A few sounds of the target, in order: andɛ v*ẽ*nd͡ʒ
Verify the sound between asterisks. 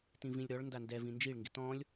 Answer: incorrect: ĩ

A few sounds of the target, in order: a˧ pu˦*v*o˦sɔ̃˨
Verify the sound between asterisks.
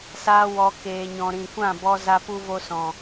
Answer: correct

